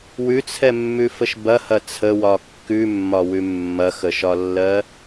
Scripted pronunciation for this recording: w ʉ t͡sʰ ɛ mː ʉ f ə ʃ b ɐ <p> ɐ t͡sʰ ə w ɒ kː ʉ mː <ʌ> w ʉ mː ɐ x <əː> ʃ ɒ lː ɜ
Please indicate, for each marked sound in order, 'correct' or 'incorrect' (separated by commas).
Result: incorrect, incorrect, incorrect